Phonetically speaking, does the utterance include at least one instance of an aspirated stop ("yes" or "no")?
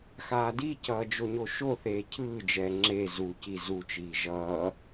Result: yes